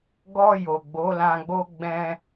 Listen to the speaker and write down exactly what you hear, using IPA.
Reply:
ɡɔ˧ jo˨ɡ͡bo˨˦lã˧ɡ͡bo˦ ɡ͡bɛ̃˧

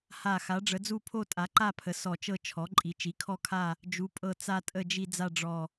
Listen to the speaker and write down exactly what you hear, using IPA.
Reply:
ha˧˩ xa˩˥ɖ͡ʐə˩˥d͡zu˥˧pʰo˥˧ tʼa˩˥ǃa˥˧pʰə˩˥ sɔ˧˩t͡ʃɤ˥˧ t͡ʃʰɔ˩˥ ǃʼi˩˥t͡ʃi˩˥kʰɔ˥˧kʰa˥˧ | d͡ʒu˩˥pʼɤ˧˩ t͡sa˥˧tʼə˥˧d͡ʒi˥˧ d͡za˥˧ɖ͡ʐɔ˧˩

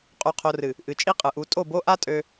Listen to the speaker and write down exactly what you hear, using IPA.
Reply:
qʼu˨qʰo˨rɨ˨ | ʔɨ˨t͡ʃʼi˦qʼɯ˨ʔu˨˦ tʼo˦˨bo˦ ʔa˦ tʼø˦

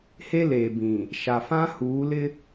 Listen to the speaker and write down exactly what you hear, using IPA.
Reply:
he˦leː˨bĩ˨ | ʃa˨fã˦huː˨˦lɪ˦

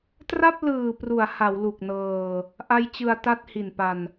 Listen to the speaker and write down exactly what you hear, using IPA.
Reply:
tra˥˩p̚lɯː˨˩pru˩˦a̯ ha˩˦wlu˨˩k̚nɤː˧ | ʔa˦˥jt͡ɕɯ˧a̯ ta˥˩t̚hi˨˩npa˧n

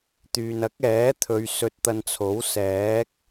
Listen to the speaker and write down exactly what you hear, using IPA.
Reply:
t̪yː˨nɐ˨˥k̚ ɛː˨˥t̪ʰɵ˨˧ɥ sɵ˧t̚t̪ɐ˧nt͡sʰo˨˥wsɛː˨˥k̚

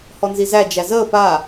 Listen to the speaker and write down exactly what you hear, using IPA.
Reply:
hɔnzizæ d͡ʒæzəː pa

